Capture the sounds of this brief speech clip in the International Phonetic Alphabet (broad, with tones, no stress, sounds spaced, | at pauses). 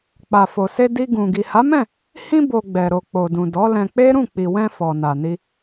k͡p a˨ f o˨ s e˧ d i˧ ɡ ũ˨ ɡ i˨ h a˨˦ m ɛ̃˦˨ | h ĩ˧ b o˨ ɡ͡b ɛ˨ ɾ o˨ k͡p o˨ d ũ˨ d ɔ˨˦ l ɛ̃˧ k͡p e˦ ɾ ũ˦˨ k͡p i˨ w ɛ̃˧ f ɔ˨ n a˨ n i˧